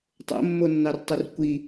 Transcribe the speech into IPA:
tˤo̰mːonːɑrtˤur kʷi

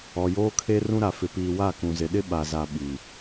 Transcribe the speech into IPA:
ɔ˨joː˦kʰe˦ rũ˦ɾa˨fɪ˨piː˨ wa˦˨kũ˨zɪ˨ɗɪ˦ ɓa˨za˨ ɓi˨

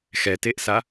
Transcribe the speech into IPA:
xɛteʔsa

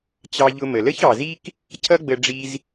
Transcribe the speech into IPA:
t͡ɕɑ˧ʎʊ˧mə˩ lə˥çɑ˩zi˥k | cʰʌ˥ ɡ͡bə˧ ɖ͡ʐi˧z

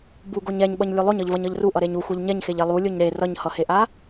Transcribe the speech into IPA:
buɡoɲ ɛɲɓʌɲ lʲulˠoɲʌʎvʌɲ ʌʎruʔʌɾeɲ u xʷɛʎɲɛɲxeʎ elˠulʲoɲ ɾe rʌɲhʌheʔa

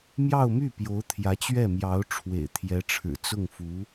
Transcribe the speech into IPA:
mjɑ˥˧ʊ̯my˥˩ pjo˧˥ʊ̯t̪ʰjä˧˥t͡ɕɥɛ˥˩mjɑ˧˥ʊ̯ ʈ͡ʂʰwḛ˨˩ɪ̯t̪ʰjɛ˧˥ʈ͡ʂʰɻ̩˨˩ t͡sʊ˥˩ŋfu˧˥

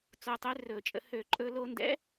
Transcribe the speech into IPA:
t͡so˧tˤø˧˥rɵː˧˩˧t͡ʃʼə̰˧ hø˧˩˧ǃʼɵː˧lo˧ndɛ̰˧˥

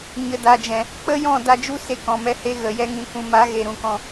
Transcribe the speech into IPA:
ɲə˨da˨d͡ʒɛ̃˨ | k͡pə˦jɔ̃˦˨ da˧d͡ʒu˦se˧ kɔ̃˨mɛ˧ he˧ɣə˨jɛ˧ ŋĩ˨kʷũ˨ma˨˦ ɣe˨ɾũ˨kɔ̃˧

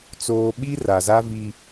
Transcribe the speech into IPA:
t͡soː˨ ɓi˦ ra˨za˦vi˦

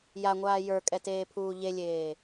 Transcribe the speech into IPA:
jaŋʷaː jə˞kʼɛteːpʰuː ʎelʲeː

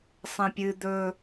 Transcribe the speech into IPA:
sˤẽpʲɨ d̪ɵ

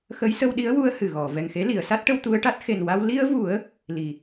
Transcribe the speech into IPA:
xə˧˥jsə˧wɗi˧˥ə̯ wu˧ə̯ hɨ˨˩ɣɔ˨˩˨ vɛ˨˩ŋxe˧˥ li˨˩˨ə̯sa˦˥t̚ʈə˧w t̪u˧ə̯ʈa˦˥t̚ xe˨˩nwa˧w li˧ə̯vu˨˩˦ə̯ | li˨˩

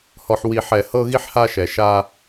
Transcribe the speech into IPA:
hɔ˨ħwi˨ħɛ˨ hɤ˦ɣi˦ħha˦ʃɛ˨ ʃa˦

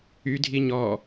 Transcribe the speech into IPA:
ydʱi ɲɔ

